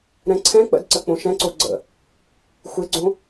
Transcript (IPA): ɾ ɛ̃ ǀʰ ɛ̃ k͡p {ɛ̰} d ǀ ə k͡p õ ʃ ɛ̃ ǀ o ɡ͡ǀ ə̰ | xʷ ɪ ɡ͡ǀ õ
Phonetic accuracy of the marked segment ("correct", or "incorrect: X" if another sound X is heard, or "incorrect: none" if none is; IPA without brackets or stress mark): incorrect: ə̰